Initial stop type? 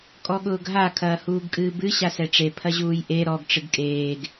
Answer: ejective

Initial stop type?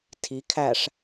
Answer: aspirated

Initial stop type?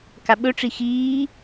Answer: plain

